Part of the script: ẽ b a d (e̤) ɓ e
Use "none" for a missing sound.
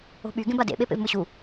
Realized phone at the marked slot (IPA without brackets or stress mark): ḛ